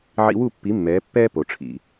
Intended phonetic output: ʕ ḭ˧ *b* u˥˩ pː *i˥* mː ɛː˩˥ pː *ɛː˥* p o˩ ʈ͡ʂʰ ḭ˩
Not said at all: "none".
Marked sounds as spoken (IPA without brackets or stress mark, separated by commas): w, i˩˥, ɛː˥